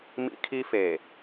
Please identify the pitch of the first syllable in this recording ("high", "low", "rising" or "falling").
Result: high